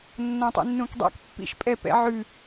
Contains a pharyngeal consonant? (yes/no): yes